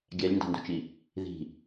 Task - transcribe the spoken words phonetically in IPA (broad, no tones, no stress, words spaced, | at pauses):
ɡʲælʲndɑ̤ndo̤t͡ʃi | ði̤